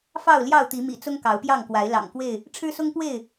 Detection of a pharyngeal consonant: absent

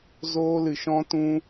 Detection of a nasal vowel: present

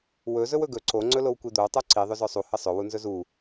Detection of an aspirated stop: absent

